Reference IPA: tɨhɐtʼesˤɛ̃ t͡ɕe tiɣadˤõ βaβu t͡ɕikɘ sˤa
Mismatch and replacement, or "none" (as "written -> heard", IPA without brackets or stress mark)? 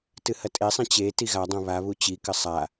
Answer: none